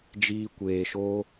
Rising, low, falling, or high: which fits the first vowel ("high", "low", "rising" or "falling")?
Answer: high